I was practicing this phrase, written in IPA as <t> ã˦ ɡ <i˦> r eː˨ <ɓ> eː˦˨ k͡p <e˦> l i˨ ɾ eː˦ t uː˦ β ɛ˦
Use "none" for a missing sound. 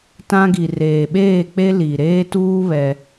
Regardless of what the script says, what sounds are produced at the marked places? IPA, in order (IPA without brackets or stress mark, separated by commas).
t, i˨, ɓ, e˦